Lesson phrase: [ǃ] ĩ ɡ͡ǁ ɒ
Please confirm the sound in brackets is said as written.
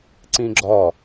no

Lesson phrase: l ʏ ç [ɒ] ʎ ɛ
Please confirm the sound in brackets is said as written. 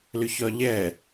yes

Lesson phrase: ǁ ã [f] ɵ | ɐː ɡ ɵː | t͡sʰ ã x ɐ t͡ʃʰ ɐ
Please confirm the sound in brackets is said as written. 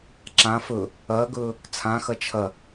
yes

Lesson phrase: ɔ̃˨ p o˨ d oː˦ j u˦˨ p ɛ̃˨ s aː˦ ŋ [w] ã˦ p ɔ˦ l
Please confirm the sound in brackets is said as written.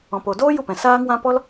yes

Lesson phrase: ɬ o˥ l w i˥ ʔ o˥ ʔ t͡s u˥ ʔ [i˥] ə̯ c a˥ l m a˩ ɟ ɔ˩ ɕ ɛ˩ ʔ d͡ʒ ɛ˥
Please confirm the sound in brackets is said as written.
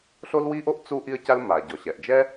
yes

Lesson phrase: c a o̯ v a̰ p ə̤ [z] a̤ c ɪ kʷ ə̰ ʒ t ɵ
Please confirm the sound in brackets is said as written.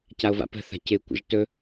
no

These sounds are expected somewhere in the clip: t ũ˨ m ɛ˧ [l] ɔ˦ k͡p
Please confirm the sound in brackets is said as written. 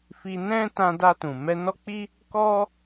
no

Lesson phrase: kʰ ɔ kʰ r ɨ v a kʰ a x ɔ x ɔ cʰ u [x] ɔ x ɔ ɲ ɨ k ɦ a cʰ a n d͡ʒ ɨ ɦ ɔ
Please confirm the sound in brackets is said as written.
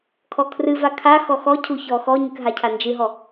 no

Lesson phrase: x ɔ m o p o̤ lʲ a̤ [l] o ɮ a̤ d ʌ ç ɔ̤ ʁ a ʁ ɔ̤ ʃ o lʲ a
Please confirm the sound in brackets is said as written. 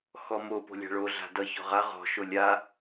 no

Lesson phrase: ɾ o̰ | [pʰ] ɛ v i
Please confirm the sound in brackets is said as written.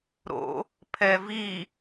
yes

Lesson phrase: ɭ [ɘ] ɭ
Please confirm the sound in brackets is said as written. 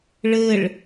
yes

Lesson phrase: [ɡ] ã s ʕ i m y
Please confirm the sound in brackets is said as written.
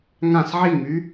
no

